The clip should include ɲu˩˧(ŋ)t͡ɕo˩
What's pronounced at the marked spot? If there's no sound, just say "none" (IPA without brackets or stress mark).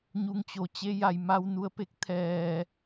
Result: ŋ